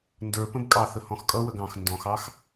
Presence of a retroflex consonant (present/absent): absent